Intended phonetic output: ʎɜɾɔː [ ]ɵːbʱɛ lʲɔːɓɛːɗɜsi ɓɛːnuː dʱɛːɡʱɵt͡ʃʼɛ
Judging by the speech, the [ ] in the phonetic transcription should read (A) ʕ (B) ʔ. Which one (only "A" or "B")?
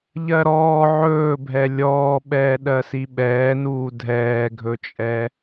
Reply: A